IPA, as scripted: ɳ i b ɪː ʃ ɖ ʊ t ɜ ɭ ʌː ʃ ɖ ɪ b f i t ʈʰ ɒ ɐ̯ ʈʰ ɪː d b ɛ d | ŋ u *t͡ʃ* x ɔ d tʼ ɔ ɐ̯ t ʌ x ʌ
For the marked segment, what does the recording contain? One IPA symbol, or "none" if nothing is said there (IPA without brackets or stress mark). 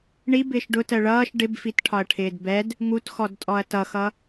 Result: t